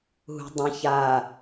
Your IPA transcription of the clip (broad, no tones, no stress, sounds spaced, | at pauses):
ɦ ṳ dˤ ɐ̃ ç a